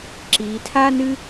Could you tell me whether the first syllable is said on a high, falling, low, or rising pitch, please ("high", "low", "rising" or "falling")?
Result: low